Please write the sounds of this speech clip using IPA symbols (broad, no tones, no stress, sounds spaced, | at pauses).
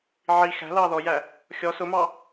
ʕ i x æ̤ l ɑː ð ɔ j æ | xʲ ɔ s ʊ m ɑ